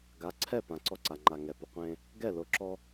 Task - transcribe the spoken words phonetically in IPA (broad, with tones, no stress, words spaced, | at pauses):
ɡa˨˦ǀʰɛ˦˨ pã˨ǀɔ˦ǀa˨ ŋ͡ǃa˨ŋɛ˨ pʊ˨qʷẽ˦ | ɡɛ˦˨lo˨ǁɔ˦